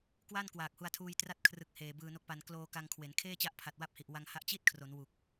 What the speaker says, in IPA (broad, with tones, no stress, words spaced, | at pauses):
kwa˥˩n kwaː˨˩k̚hu˧a̯tʰuː˧j tra˦˥t̚kʰrɯ˨˩k̚ heː˨˩bɯː˧no˦˥k̚pa˧n kloː˧ ka˧ŋkʰwe˩˦n kʰeː˥˩t͡ɕa˦˥ʔpʰa˨˩t̚ wa˦˥p̚hi˨˩ʔ wa˧ŋha˦˥ʔ t͡ɕi˥˩t̚kʰro˩˦n wu˨˩k̚